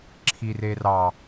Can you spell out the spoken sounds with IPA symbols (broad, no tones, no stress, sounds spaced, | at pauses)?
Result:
ǁʰ i r e r ɑ